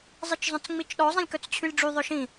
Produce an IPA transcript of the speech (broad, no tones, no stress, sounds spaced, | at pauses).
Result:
zˤ i t͡ʃ zˤ œ̃ t͡s ŋ͡m i t͡ʃ ɗ ɔ zˤ ĩ lʲ k œ t͡s t͡ɕʰ y lʲ ɖ͡ʐ y ðˤ œ ʃ ĩ